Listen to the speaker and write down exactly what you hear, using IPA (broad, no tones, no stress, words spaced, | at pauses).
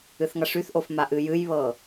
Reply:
ɨθŋɐʂyθʔof maʔɨjɨjβɤ